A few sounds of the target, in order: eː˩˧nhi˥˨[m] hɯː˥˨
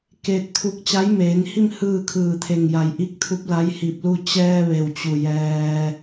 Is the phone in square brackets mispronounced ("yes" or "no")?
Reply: no